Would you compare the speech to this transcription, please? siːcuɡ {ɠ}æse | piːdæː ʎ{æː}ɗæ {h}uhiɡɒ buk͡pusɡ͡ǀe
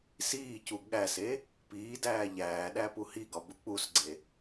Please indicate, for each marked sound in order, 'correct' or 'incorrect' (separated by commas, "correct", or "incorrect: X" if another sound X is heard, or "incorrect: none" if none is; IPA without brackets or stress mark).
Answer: correct, correct, incorrect: p